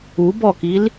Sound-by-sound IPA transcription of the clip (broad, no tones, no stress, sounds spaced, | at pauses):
u b ɔ k i l